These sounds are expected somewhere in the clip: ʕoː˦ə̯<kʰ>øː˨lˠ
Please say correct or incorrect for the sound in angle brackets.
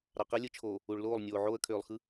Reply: correct